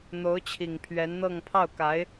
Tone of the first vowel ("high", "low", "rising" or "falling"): rising